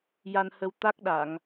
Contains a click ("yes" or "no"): no